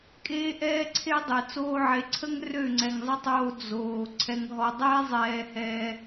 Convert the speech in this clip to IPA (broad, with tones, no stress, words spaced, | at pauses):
kʼeː˦ʔɛː˦ǀʰe˦dˤe˨ t͡soː˧ʕe˨ǀʰə˦ŋ rø˦˨ŋ͡ǀɛ˨ŋzˤə˦tˤoː˧ d͡zoː˨ ǀʰɛ˨ŋɦɔ˨dˤeː˦ zˤɛː˧hɛː˧